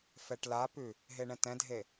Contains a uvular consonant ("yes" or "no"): no